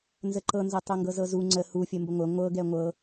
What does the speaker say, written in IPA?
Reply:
n z ə ǃ ɤ n z ɤ tˤ ɤ ŋ ɡ ɤ z ɤ z u ŋ͡ǀ ə h u fʲ ə m b ə ŋʷ ə ŋʷ ɤ ɡ ɛ ŋʷ ɤ

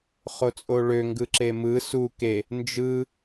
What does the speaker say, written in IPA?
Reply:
χ o t͡sʼ o ɭ ø ŋ ɡ ɯ ǁ e m ɯ s u k e | n d͡ʒ ɯ

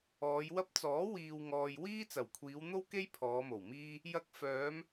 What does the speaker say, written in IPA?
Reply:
ɔː˨˧ j w ɐ˥ p̚ t͡s ɔː˨˥ w iː˨ w ŋ ɔː˨ j w iː˥ t͡s ɐ˨˩ w kʷʰ iː˨˧ w n̪ o˥ w k e˥ j pʰ ɔː˨˧ m o˨˩ w m iː˥ | j ɐ˧ k̚ f œː˨˧ m

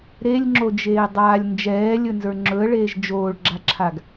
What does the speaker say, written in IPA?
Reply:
ɾ e lʲ ŋ͡ǁ o d͡ʒ eː dˤ aː lʲ n d͡ʒ ɛː lʲ ɵ n z ə˞ ŋ͡ǁ ɵ ə̯ ɭ eː ʒ d͡ʒ oː ɭ ɡ͡ǁ a ǁʰ a ɡ

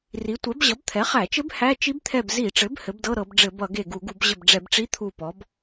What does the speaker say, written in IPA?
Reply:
r i˩˥ tʷ ɛ˩˥ b ʑ ʌ˩˥ b t̪ʰ ɛ˩˥ χ æ˧˩˧ t͡ʃ ɘ˧˥ b h æ˧˥˧ t͡ʃ i˧˥ b t̪ʰ ɛ˧˩ b z i˧˩˧ ʈ͡ʂ ɘ˩˥ b h ɘ˩˥ b d ɤ˧˥˧ ɾ ɤ˧˩˧ b ɖ͡ʐ ɘ˧˩˧ b ʌ˧˩˧ ɡ e˧˩ ɡ u˧˩˧ ɡ u˧˩˧ b ʑ ɘ˧˩ b ɖ͡ʐ ɛ˧˩˧ b ʈ͡ʂ i˧˥˧ t̪ʰ u˧˩ p ɔ˩˥ b

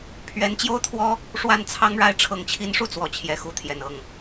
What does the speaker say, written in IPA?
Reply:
pʰ ɥ ɛ˧˥ n t͡ɕ j o˥ ʊ̯ t̪ʰ w ɔ˥ | ʂ w a˥˩ n t͡sʰ ɑ˥ ŋ ɻ a˥˩ ɪ̯ ʈ͡ʂʰ ɤ˧˥ ŋ t͡ɕʰ i˧˥ n ʂ u˥˩ t͡s w ɔ˧˥ t͡ɕʰ j ɛ˧˥ x u˧˥ t̪ʰ j ɛ˨˩ n ɤ˥˩ ŋ

